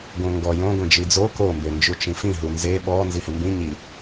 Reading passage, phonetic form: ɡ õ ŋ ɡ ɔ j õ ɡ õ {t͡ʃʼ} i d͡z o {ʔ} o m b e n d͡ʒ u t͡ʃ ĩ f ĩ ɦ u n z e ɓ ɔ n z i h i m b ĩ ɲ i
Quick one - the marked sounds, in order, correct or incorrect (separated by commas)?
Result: incorrect, incorrect